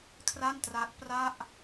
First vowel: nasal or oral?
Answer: oral